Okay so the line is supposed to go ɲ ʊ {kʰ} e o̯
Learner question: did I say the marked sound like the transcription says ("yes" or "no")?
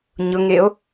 no